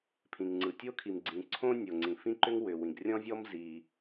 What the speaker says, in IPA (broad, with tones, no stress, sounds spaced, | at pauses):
pʰ ĩ˩ ŋ ŋ͡ǀ ɯ˩ tʲ o˥ kʰ i˩ m ɡ͡ǀ ĩ˩ ǀʰ õ˥ nʲ o˩ ŋ͡ǀ ĩ˩ f ĩ˥ ǃ ʏ˥ ŋ w ʏ˩ w ĩ˩ ɡ rʲ ɔ̃˥ vʲ ɔ˥ m z i˩